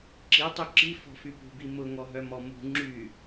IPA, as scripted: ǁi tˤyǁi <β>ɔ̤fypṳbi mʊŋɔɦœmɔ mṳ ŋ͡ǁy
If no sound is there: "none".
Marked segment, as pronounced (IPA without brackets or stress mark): f